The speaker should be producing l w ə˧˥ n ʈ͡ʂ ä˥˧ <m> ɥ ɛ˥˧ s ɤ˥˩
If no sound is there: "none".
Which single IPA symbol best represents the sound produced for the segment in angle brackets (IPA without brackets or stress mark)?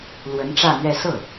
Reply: m